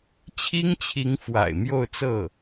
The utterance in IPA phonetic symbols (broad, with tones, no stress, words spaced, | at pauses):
t͡ɕʰi˥ŋt͡ɕʰi˧˥ŋ fwa̰˨˩ɪ̯ mjo˥˧ʊ̯t͡sɤ˥˩